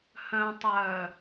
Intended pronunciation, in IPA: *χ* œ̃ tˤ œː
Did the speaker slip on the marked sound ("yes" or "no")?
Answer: yes